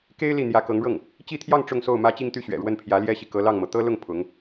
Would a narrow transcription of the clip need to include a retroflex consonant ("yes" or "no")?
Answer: yes